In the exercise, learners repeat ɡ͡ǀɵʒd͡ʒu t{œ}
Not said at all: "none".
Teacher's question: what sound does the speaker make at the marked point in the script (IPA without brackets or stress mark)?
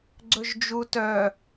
œ